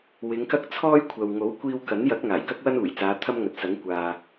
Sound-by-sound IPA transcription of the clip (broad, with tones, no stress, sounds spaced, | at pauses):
w ɪ˨˧ ŋ k ɐ˥ k̚ t͡sʰ ɔː˥ j kʷʰ ɐ˨ w ŋ o˨˥ w kʷ iː˧ w k ɐ˨˥ n j ɐ˨˥ k̚ ŋ aː˨˩ j k ɐ˥ k̚ w ɐ˥ n uː˨˩ j t͡s aː˨˧ t̪ʰ ɐ˥ m ŋ ɐ˨˥ t̚ s ɐ˨˥ ŋ kʷ aː˨